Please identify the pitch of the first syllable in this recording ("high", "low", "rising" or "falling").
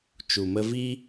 low